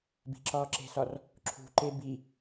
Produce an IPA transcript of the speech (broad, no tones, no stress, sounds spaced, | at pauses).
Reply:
b i̤ ǁ ɒː ǁ e̤ s ɒ r | ǁʰ ṳ ǃ e b i